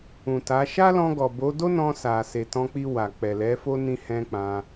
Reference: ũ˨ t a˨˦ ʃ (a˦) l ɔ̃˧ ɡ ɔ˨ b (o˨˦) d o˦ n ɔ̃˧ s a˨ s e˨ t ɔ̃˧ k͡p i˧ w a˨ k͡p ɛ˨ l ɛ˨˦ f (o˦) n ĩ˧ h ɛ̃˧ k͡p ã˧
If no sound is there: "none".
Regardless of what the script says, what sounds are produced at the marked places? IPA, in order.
a˦, o˨˦, o˦

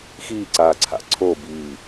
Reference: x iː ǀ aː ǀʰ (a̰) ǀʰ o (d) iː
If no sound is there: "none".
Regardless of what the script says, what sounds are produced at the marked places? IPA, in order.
a̰, b

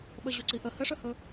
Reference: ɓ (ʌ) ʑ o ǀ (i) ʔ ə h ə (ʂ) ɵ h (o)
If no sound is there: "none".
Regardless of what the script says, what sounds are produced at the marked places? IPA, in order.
ə, i, ʂ, ɵ

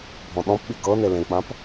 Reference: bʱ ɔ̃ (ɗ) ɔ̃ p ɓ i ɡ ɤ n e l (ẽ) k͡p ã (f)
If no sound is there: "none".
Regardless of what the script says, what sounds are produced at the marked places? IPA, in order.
ɗ, ẽ, p

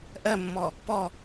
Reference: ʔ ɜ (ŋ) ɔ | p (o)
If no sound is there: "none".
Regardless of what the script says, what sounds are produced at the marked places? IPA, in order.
mː, ɔ

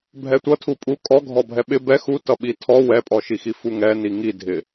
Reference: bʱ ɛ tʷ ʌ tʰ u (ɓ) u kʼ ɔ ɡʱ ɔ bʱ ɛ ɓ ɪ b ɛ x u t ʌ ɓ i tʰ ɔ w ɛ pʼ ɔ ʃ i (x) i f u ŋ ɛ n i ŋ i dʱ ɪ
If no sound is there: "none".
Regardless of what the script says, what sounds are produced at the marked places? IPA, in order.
pʼ, x

